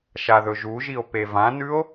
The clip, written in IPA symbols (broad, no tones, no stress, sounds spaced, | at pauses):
ʃ a ð ɵ ʒ u ʒ i o̯ p e v ã n ʉ o̯